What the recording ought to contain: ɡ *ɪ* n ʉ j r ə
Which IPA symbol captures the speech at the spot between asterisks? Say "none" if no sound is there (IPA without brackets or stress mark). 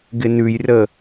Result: ɪ